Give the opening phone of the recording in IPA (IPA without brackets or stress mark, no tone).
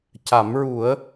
c